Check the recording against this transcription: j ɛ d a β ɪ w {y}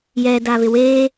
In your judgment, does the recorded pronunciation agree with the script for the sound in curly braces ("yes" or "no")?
no